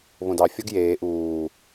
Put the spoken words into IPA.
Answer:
β õ d ɑ fʲ ɔ ɡ j eː ʔ uː

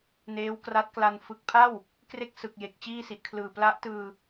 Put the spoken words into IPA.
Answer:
n eː˦˥ w k r a˦˥ t̚ k l a˧ n f ɯ˨˩ k̚ pʰ a˥˩ w | k r e˥˩ k̚ s ɯ˨˩ k̚ j e˨˩ k̚ t͡ɕ iː˥˩ s i˨˩ ʔ kʰ l ɯː˨˩ p l a˦˥ ʔ t ɯː˧

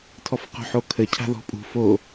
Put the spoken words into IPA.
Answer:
tʰ ɔ f q o̤ ħ o kʰ ə cʰ a̤ ð ɔ̤ pʼ ṳ f o

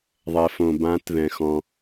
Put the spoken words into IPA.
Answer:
ðˤ ɛ˧ f õ˧ b ã˦˥ t ð ɛ̃˧ x ɔ̃˧

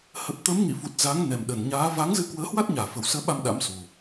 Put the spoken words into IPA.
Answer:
h ə˨˩ p̚ t̪ əː˨˦ m ŋ ḭ˧˨ f u˨˩ t̚ z a˨˦ ŋ n ɛ˨˩ m ɗ ə˨˩ n ɲ aː˨˦ v a˨˦ ŋ z ɨ˧ k w əː˨˦ h w a˦˥ t̚ ɲ aː˧˩ f ə˨˩ w s əː˨˦ ɓ a˧ m ɗ a̰˧˥ m s u˨˩

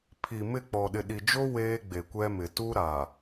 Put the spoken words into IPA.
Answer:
pʰ i˨ m ɪ˦˨ k͡p ɔ˨ ɗ ɪ˨ ɗ i˨ d͡ʒ o˦ w eː˦ ɡ͡b e˨ kʷ ɛ˦ m ɪ˨ t u˦ ɾ a˨

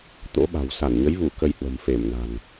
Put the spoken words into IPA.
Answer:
t̪ o̰˧˥ ɓ a̤˨˩ w s a˧˩ n ɲ ə˨˦ j v u˧˩ k ə˧ j h w ə̤˨˩ m f e˧˩ m n a̤˨˩ n

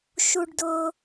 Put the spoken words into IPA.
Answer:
ʃ u˧ ɖ d ʊː˧

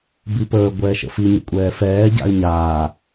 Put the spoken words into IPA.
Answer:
b i p əː ɡʷ ɛː ʃ ə̰ f i ɲ ə̰ kʷʼ ɛː f ɛː ɟ a̰ ɪ̯ ɲ aː

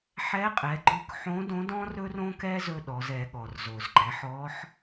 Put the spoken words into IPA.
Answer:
ħ ɛ˧˥ qʼ ɛ˩˧ ɡ͡ǃ ɵ˧˥ k ħ õ˧˥ d õ˧˥ d ɔ̃˥ r ɵ˥ r õ˥ k ɛ˥ z ɵ˧ ɗ ɔ˩˧ z ɛ˩˧ ɠ ɔ˩ r z o˩ z ɡ͡ǃ ɛ˩˧ ħ ɔ˧˥ ħ

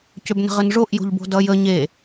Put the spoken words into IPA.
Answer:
c ø b n ə̤ ʁ ə n ʐ o ʔ j o̤ ʎ b o̤ d ʌ j ə ɲ e

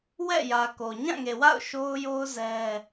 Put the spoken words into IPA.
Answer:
w ɛ̰˦˨ j ä˨ k o˨ ɲ ã˦˨ ŋ e˨ w a̰˦˨ ʊ̯ ʃ o˦ ʊ̯ j o˦ ʊ̯ z ɛ˦

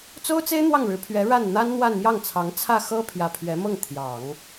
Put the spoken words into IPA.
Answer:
t͡s o˥ ʊ̯ t͡s e˥ ɪ̯ n̪ w ɑ˥˩ ŋ ɻ ɻ̩˧˥ pʰ ɥ ɛ˧˥ ɻ a˥˩ n n̪ a˥ n n̪ w a˥˧ n m j ɑ˥˩ ŋ t͡sʰ ɑ˧˥ ŋ t͡sʰ ä˥˩ x ɤ˥ pʰ j ä˧˥ pʰ ɥ ɛ˧˥ m ɤ˥˩ ŋ t̪ʰ j ɑ˨˩˦ ŋ

